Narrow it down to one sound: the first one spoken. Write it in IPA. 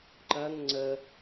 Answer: ǃ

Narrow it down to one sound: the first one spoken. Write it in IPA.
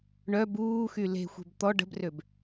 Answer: ɳ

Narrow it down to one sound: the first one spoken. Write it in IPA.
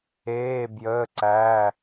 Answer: eː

